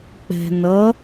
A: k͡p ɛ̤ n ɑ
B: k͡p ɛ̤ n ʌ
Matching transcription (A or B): B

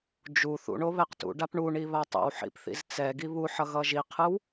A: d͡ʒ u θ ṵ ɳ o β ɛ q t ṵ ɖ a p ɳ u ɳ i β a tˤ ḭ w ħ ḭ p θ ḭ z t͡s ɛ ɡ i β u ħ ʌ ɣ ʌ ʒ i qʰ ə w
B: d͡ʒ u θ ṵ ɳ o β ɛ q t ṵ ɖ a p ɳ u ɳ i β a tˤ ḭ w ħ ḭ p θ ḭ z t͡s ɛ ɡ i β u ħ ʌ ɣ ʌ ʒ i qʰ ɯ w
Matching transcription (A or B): B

